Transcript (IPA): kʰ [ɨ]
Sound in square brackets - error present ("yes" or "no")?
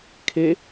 yes